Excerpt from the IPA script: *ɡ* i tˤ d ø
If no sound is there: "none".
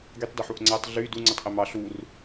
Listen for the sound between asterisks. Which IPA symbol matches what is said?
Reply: ɡ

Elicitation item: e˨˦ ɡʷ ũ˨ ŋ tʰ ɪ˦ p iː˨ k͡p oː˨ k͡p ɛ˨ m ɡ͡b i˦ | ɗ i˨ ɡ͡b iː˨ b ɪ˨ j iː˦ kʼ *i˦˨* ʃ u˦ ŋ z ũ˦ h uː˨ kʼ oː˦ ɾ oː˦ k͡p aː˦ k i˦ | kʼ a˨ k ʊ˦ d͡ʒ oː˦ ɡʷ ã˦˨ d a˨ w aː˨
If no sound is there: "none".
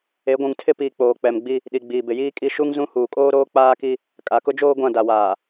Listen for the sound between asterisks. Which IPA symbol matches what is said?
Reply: i˦˨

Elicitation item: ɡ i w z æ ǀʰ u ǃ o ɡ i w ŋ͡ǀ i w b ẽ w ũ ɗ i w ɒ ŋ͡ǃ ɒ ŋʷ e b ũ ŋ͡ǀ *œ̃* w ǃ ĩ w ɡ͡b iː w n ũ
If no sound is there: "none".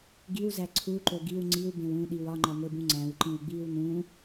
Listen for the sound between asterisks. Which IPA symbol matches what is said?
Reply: æ̃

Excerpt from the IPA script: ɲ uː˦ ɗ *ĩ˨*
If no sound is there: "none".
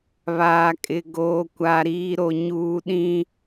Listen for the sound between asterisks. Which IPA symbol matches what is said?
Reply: ĩ˦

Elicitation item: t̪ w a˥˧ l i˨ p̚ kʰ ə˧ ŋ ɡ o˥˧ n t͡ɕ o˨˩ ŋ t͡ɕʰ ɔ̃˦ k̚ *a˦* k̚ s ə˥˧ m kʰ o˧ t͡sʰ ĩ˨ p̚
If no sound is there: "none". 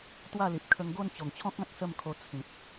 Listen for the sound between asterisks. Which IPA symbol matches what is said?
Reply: ã˦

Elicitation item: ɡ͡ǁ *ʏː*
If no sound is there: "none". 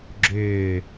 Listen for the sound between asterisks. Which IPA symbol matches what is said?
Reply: ʏː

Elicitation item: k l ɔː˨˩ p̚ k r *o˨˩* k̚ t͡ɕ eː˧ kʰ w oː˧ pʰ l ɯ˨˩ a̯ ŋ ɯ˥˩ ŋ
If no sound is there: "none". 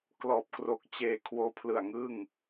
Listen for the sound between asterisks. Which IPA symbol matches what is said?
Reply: o˨˩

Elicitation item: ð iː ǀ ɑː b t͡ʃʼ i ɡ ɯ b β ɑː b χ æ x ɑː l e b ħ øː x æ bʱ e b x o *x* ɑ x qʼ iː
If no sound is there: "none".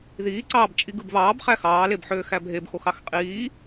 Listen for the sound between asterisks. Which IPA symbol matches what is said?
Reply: x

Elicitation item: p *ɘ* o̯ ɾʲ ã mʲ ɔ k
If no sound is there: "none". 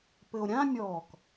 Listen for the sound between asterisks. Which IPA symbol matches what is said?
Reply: ɘ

